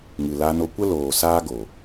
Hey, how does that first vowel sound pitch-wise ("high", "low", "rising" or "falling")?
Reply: low